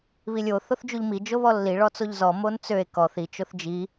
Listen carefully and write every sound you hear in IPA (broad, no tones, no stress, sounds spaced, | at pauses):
β i lʲ o θ o θ d͡ʒ u ʎ m i d͡ʒ o β ɔ lː i ɭ ɔ t͡s o ʎ z ɔ m o n t͡s ø e̯ k ɔ θ i t͡ʃ o θ d͡ʒ i